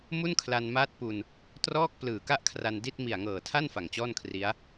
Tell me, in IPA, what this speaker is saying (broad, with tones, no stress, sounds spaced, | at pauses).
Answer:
m u˥˩ n kʰ l a˧ n m aː˦˥ t̚ p u˧ n | t r ɔː˥˩ k̚ p l ɯː˨˩ k a˥˩ ʔ kʰ r a˧ n d i˥˩ t̚ m i˨˩ a̯ ŋ ɤː˨˩ tʰ a˥˩ n f a˨˩ ŋ t͡ɕ ɔː˥˩ n kʰ r i˦˥ a̯